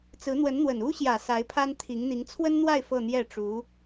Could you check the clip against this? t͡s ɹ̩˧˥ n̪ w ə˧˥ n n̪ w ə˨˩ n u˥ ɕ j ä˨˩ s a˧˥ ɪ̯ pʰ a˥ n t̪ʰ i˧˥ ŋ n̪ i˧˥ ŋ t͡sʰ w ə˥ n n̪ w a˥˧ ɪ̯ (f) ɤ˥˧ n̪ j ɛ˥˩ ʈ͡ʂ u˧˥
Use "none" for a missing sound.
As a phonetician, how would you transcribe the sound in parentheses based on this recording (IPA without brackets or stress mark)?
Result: f